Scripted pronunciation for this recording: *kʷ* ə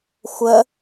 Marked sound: incorrect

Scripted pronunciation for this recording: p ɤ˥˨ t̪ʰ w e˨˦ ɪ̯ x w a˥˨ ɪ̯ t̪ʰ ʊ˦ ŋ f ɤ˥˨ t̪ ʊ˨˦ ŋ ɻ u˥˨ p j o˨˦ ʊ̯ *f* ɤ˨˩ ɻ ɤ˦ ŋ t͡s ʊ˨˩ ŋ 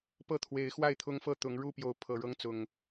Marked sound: incorrect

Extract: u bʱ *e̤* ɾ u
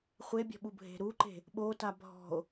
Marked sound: correct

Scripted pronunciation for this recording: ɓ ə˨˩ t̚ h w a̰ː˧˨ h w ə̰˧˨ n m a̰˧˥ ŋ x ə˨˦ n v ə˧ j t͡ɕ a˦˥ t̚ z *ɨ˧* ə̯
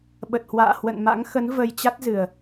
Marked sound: incorrect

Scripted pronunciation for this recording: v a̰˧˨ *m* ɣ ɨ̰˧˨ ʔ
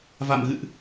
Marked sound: correct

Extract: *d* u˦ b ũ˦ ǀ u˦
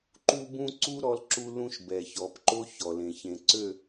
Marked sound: incorrect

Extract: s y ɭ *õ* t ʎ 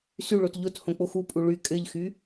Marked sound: incorrect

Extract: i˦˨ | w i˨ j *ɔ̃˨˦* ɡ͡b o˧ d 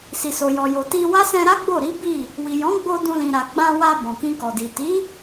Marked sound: correct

